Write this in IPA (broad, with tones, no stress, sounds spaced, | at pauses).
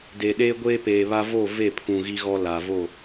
d eː˨ ɗ eː˦ ɡʷ eː˦ p eː˨ β a˦ v o˦˨ v e˦˨ pʰ ũ˨ ɣ i˦ ɣ ɔ˦ l a˨ v o˦˨